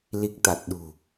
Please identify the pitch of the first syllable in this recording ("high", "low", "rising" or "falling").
low